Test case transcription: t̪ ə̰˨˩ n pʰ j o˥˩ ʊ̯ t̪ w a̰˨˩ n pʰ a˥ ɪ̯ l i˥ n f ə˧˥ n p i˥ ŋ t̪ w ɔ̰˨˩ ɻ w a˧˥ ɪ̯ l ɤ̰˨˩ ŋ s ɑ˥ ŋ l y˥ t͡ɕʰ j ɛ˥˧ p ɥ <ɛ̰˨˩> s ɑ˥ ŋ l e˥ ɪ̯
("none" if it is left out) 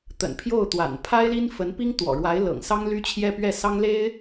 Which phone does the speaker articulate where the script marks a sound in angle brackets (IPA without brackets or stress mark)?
ɛ˥˩